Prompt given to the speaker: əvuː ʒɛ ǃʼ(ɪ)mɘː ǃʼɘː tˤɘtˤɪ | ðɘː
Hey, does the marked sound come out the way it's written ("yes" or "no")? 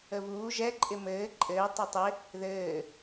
yes